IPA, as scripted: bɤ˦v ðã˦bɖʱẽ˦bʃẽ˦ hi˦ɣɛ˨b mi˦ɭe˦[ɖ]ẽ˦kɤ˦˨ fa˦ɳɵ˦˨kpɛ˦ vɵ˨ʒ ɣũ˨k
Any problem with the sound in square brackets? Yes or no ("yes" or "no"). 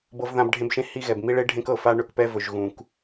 yes